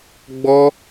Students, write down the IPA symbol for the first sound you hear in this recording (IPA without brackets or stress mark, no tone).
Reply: ɡ͡b